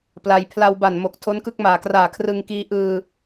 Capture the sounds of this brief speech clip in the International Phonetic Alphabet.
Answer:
pla˧j pʰla˧wba˨˩nmo˨˩k̚ tʰo˦˥nkɯ˦˥k̚maː˨˩kraː˨˩ kʰrɯ˧ŋkiː˦˥ ʔɯː˧

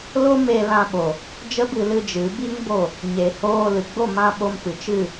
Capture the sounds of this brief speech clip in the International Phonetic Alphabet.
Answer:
lo˦me˧lã˧ ɓo˨ | d͡ʒə˦bɨ˧lɨ˧ d͡ʒɨ˨˦bi˦ŋbo˦˨ | ɲe˨hoː˧lɨ˨ ɡ͡bo˦˨mã˧ ɓo˧mpɨ˨t͡ʃɨ˦˨

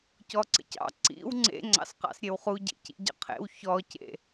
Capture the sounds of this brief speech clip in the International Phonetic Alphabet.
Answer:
cɔǀə̰cɑ̰ ǀḭw ŋ͡ǀḛ ŋ͡ǀɑ̰sqɑ̰sɾʲewχu ɟḛcḭɟə̰qʰḛw çɔcḛ

